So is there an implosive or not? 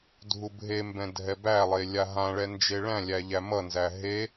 no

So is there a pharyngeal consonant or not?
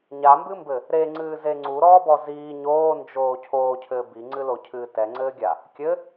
no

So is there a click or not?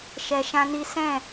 no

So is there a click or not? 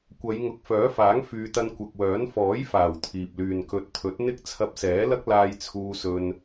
no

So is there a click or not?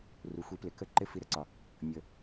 yes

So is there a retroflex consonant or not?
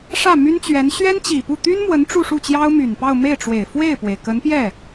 yes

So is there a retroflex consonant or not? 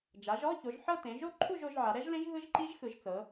no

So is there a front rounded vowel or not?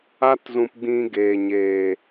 no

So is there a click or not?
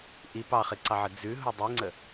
yes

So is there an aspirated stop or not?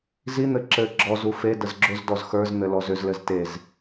no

